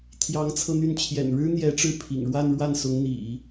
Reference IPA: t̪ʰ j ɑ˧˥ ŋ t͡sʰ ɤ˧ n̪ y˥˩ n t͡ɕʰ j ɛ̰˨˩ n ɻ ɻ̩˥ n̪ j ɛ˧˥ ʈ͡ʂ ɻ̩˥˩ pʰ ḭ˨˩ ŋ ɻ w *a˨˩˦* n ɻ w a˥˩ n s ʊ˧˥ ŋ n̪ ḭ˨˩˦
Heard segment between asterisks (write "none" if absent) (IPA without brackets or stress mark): a˥˧